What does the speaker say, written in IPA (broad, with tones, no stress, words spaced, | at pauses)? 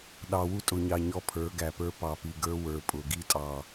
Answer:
ɗɑ˨wu˦tʼʊ˨ɲɑ˨ ɲɔ˦pʰə˞˨˦ɡæ˨pə˞˦ pɑ˨pi˨ɡə˞˦ wə˞˨ pʼʊ˨ɡi˦tʼɑ˨